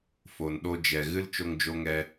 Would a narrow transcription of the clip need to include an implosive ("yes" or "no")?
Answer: yes